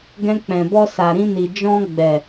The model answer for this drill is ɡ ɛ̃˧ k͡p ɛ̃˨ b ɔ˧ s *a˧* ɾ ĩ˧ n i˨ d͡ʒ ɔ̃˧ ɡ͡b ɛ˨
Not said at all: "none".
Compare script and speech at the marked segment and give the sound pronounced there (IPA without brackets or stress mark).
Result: a˨